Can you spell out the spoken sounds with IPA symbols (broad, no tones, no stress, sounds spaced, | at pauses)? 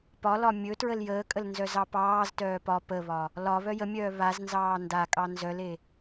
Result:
p ɒ l ɒ mʲ ɵ t ɹ ə l j əː kʼ ə l n z œ z ɑ p ɑː z t œː p ɒ p ə β ɒ | l ɒ β œ j ə mʲ œː β a z n z ɑː n d a kʼ ɑ n z œ l e